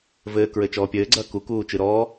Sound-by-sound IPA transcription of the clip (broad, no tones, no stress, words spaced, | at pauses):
vɘːkɹɘ t͡ʃɔːpʲɘːɡ͡ǀɐː kukuː t͡ʃɨɾɔː